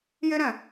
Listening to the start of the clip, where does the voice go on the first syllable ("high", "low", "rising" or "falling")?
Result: high